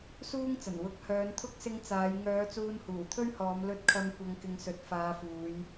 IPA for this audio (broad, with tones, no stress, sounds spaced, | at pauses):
s uː˥ ŋ t͡s ɐ˨˩ n w ʊ˨˥ k̚ h œː˨˧ n t̪ʰ ʊ˥ k̚ s ɪ˧ ŋ t͡s aː˨˧ j ŋ œː˨˧ t͡s uː˧ n h uː˨˩ t̪ʰ ɵ˥ ɥ h ɔː˨˧ m l ɵ˧ t̚ kʰ ɐ˧ m kʷ ɐ˨ ŋ k ɪ˨˧ ŋ s ɵ˨ t̚ f aː˨˧ f uː˨˧ j